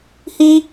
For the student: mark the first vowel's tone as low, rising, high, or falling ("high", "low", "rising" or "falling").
high